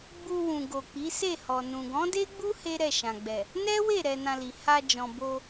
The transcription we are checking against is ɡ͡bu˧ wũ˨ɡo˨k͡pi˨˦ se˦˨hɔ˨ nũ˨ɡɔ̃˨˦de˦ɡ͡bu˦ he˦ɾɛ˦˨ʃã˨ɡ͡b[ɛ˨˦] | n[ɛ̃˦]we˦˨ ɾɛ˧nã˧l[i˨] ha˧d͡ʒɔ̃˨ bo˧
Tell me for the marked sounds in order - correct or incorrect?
incorrect, incorrect, correct

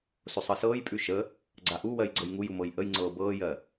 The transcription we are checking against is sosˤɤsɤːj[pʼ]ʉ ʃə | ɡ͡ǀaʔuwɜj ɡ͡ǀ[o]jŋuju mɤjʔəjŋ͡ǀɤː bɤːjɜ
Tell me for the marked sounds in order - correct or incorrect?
correct, incorrect

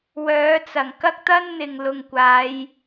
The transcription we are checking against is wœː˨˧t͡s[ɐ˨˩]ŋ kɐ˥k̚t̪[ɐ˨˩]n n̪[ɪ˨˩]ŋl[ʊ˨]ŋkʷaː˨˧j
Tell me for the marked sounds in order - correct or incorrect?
correct, incorrect, incorrect, correct

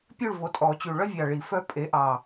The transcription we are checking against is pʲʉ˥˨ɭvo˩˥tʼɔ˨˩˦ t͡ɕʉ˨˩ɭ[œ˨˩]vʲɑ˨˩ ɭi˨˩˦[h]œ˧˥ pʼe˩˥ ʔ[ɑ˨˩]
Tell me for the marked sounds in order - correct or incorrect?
incorrect, incorrect, correct

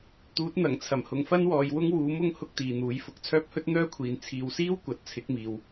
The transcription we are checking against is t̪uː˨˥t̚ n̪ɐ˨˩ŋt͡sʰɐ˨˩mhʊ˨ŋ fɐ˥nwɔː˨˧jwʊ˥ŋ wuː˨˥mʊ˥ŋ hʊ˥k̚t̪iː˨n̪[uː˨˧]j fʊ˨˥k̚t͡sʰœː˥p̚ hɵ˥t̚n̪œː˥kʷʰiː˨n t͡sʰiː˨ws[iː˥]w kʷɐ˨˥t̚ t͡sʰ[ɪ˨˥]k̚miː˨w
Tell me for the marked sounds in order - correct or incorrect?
incorrect, correct, correct

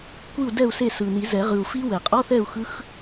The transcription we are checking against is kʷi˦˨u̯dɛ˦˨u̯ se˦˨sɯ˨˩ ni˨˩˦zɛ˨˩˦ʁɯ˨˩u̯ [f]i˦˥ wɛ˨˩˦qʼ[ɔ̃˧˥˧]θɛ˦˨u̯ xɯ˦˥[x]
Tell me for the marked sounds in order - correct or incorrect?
correct, incorrect, correct

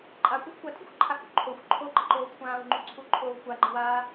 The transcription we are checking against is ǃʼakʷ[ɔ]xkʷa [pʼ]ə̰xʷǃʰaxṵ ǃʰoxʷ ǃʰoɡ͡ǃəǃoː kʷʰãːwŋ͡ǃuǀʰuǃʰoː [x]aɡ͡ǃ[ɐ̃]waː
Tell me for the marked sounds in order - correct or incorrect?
incorrect, incorrect, incorrect, incorrect

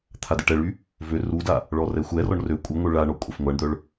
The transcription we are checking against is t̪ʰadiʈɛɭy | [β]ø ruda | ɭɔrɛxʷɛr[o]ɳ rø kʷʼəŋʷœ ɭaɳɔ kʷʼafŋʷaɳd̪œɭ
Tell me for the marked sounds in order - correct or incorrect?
incorrect, incorrect

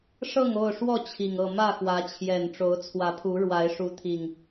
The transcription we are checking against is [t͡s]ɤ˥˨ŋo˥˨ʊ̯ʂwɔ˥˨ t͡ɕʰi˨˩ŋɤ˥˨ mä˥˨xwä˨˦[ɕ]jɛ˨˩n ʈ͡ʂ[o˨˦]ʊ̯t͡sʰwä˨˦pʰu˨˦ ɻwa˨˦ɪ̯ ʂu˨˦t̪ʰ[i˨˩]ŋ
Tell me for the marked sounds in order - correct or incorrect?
incorrect, incorrect, correct, correct

